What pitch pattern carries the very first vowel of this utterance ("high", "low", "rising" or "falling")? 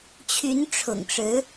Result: rising